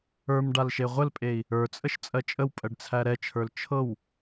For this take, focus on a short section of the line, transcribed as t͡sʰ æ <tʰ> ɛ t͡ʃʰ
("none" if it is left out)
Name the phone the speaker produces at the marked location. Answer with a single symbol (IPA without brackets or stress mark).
ɾ